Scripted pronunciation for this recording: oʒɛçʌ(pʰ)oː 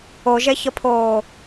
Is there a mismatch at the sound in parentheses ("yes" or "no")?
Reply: no